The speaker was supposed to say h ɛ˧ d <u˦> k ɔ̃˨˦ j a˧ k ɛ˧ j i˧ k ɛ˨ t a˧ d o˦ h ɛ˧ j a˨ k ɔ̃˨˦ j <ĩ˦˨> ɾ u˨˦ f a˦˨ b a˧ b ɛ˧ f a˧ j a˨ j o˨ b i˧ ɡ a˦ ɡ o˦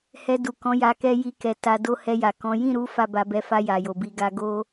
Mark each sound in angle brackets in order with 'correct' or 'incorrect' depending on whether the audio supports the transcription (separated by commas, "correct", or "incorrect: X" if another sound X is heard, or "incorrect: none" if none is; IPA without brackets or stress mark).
incorrect: u˨, correct